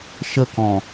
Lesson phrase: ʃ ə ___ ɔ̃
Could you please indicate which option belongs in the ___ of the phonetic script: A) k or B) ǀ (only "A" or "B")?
A